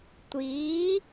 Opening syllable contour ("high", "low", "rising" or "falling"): rising